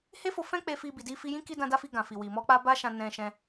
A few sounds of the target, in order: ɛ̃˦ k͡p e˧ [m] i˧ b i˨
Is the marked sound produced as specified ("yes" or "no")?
no